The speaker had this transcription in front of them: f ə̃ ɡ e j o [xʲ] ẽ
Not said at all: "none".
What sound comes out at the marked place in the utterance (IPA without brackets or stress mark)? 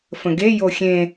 xʲ